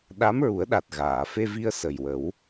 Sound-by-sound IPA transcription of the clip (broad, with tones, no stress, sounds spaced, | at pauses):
ɗ a˧˥ m ɹ u˨˩˦ ə̯ ɗ a˨˩ t̚ ɣ aː˨˩˨ f e˧ v i˧ ə̯ s ə˨˩ j w ə˨˩˦ w